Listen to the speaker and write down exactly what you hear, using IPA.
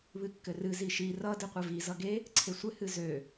β ɨ kː ɘ r ɨ z i ʃ i r ʌ d ɨ qʷ ɘ v i z ʌ ɡ e | ǀʰ e sʷ ɘ h ɨ z ø

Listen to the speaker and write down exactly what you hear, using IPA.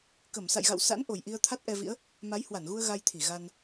k ə˧˩ m s a̰˧˨ j ɣ a̰˧˨ w s a̰˧˥ n ʔ o˨˩ j ʔ i˧ ə̯ t̪ʰ a˦˥ t̚ ʔ ɛ˧ v ḭ˧˥ ə̯ | m a˨˦ j h w a˧˩ n ɣ u˧ ə̯ ɣ a˧ j t̪ʰ i˧˩ ɣ a˧ n

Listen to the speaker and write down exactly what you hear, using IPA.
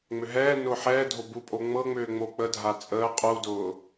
ŋ͡m ʏ ɦ ɛː n ʊː ħ ɛː dʱ o b u pʼ o ŋ͡m ɤ ŋ͡m ʏː ŋ͡m o k͡p ə dʱ a t͡sʼ əː qʼ u d ʊː

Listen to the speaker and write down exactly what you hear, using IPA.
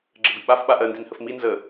ɡ͡ǁ ə b i ɓ a f ɓ a ʔ ɜ n d i n h ə f m i n z ə

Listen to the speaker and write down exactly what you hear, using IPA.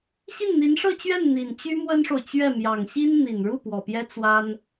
ɕ i˥˩ n n̪ i˧˥ n ʂ ɤ˥˧ t͡ɕ ɥ ɛ˥˩ n n̪ i˨˩ n t͡ɕ y˥ m w ə˥ n ʂ o˨ ʊ̯ t͡ɕ ɥ ɛ˥˩ m j ɑ˨˩ ŋ ɕ i˥ n n̪ i˨˩ n ɻ u˥˩ p w ɔ˨˩ p j ɛ˥ t͡s w a˥ n

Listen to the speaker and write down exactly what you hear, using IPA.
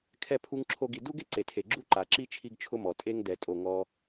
kʰ ɛ˥ pʰ u˥ ŋ ǁʰ o˥ ɡ i˧ d u˥ ɡ e˥ ǀ e˩ tʰ e˩ ɡ͡ǁ u˥ ǃ a˩ ǁ i˥ t͡ʃʰ i˥ ɡ t͡ʃʰ ʊ˥ m ɔ˩ tʼ e˥ ŋ d ɛ˩ tʼ o˩ ŋ ɔ˧

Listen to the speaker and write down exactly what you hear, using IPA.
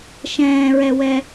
ʃ ɛ̃ː ɹ ɛ w ɛ

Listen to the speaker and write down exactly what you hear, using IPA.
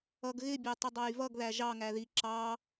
ʌ ɡ ɣ ɪ bʲ æ tˤ ɪ dˤ ɑ j v ʌ ɡ ð æ ʒ ɑ ŋ æ ð i ǁ ɑ

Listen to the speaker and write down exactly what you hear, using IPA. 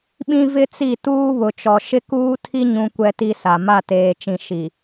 ɓ ĩ˦ v ɪ˦ t͡s i˦˨ t uː˦ β ʊ˨ t͡ʃ ɔ˨ ʃ ɪ˦ k uː˦ tʰ i˦ ɲ ũ˦ kʷ ɛ˦ t i˦ s a˨ m a˦˨ t eː˨ t͡ʃ ĩ˨ ʃ i˨

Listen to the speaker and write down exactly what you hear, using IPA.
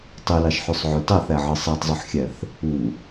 tˤ y l ɑ ʃ ħ y sˤ ʕ ø t ɑ θ æ ʕ ɯ sˤ æ tˤ zˤ u ħ xʲ æ θ | u

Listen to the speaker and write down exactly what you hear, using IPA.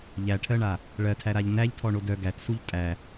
ʎ æ ʈʰ ɜ ɳ a | ɭ ɜ tʰ æ ɾ a ʎ n æ ʎ tʰ ɔ ɳ o d œ ɡ æ t s u ʎ tʼ æ

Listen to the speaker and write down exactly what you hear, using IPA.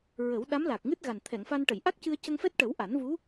ɹ ə˨˩˦ w ɗ a˧˥ m l a˨˩ k̚ ŋ ɨ˦˥ t̚ ɣ a˨˩ n t̪ʰ ɛ˨˩˨ ŋ f a˧ n ʈ ə˨˩˨ j ʔ a˦˥ k̚ c ɨ˧ ə̯ c ə˧ ŋ f ɛ˦˥ t̚ ʈ ə˨˩˦ w ʔ a˨˩˦ n v u˧˥

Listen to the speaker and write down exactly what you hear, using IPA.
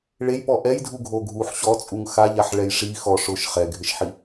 ɭ e j p ɔ ʔ ɛ j dʱ u ɡʱ o ɡʱ u ħ ɕ ɔ t͡sʼ u ŋ x a ʎ a ħ ɭ ɛ j ʂ i x ɔ ʂ ʊ ʃ χ ɛ ɡʱ ɪ ʃ ħ i

